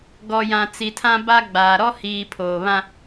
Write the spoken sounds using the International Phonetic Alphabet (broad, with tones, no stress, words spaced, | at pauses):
ɡɔ˨ jã˨t͡si˨tʰã˦ ba˦ɡ͡baː˨ ɾɔ˦hiː˨ pʰoː˨βã˦